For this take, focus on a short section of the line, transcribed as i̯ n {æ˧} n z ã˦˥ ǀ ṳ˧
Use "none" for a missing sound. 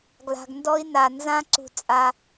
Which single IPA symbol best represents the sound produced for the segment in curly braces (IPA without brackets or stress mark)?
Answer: a˧